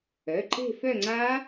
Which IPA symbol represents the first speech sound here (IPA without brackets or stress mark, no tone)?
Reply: œ